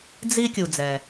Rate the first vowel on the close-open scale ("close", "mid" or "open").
close